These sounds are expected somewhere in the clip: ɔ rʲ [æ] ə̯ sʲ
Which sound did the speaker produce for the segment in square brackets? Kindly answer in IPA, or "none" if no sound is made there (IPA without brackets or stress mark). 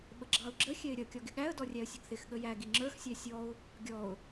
æ